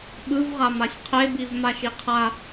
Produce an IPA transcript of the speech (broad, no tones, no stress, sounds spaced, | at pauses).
ɓ ɯ v ʁ a m a sʲ qʰ e b i v m a ʃ i qʰ a